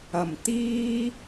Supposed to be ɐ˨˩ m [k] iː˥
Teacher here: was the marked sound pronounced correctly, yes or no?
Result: no